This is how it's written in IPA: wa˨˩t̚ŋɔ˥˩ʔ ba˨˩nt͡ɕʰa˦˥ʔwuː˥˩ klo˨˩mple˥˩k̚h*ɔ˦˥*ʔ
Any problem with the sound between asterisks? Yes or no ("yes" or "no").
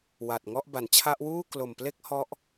no